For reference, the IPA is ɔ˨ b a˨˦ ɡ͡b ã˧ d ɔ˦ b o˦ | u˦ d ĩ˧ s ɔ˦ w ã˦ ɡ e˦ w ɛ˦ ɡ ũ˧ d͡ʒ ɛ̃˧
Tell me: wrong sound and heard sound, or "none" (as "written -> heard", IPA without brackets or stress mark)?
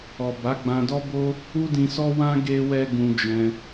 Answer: none